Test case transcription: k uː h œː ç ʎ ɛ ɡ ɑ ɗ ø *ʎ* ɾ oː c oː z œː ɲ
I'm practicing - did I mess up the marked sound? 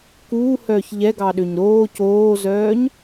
yes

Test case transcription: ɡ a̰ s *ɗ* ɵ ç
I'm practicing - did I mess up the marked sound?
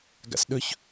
no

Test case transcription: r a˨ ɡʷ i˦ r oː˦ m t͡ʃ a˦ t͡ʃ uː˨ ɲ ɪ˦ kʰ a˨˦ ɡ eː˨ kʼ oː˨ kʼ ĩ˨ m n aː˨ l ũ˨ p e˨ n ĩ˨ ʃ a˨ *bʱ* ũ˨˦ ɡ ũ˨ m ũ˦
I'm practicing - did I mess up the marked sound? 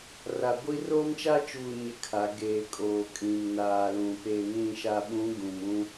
yes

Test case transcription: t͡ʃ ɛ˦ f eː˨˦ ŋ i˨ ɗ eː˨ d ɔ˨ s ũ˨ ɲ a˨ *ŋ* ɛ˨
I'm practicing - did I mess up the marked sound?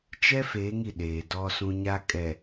yes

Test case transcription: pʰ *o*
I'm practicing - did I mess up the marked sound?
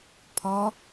yes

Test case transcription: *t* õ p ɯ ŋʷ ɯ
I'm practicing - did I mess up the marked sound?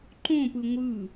yes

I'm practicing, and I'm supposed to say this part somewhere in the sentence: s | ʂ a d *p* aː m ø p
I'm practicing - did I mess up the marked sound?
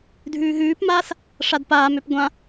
no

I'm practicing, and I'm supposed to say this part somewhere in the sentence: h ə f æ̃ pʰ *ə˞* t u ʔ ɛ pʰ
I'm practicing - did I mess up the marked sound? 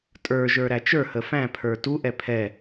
no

